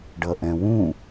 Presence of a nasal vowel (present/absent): present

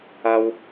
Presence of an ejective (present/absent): absent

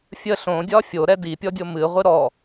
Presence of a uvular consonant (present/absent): present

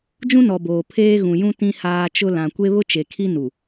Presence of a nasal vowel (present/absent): present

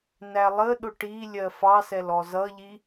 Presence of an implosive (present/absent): present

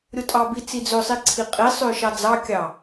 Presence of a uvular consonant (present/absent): present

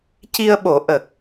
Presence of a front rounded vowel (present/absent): absent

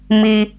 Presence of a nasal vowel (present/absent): absent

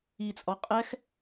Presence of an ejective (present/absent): present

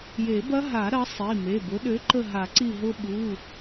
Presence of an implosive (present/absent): present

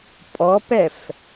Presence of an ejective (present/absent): present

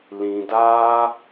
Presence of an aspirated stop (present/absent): absent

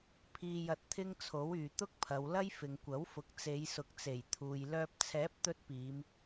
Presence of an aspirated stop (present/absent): present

